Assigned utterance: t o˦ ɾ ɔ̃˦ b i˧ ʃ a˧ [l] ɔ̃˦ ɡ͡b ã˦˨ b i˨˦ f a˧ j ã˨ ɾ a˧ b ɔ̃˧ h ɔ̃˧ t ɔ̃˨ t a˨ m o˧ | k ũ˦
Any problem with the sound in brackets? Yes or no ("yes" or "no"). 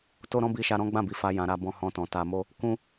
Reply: yes